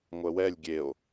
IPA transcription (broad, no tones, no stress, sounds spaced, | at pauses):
ŋʷ ɛ w ɛ lʲ ɡʲ e o̯